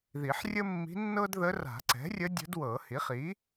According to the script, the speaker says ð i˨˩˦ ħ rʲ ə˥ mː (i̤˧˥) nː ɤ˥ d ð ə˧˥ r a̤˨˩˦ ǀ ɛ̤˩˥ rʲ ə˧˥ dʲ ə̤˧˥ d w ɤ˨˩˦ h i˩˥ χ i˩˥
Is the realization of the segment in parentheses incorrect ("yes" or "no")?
no